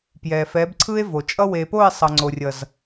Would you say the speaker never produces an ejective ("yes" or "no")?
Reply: no